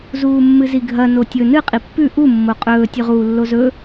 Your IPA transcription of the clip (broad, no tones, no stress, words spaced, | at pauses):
zuːmːɨziɡʱɐ notʲɵ nɨ qʼipːʉ ʔu mːoqʼɵː tʲʉʁuːlːozɵ